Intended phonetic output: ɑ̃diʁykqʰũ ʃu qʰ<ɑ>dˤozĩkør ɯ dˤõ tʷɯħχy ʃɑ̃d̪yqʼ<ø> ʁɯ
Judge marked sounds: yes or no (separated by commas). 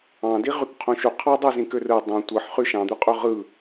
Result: yes, yes